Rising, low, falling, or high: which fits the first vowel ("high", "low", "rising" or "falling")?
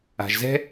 low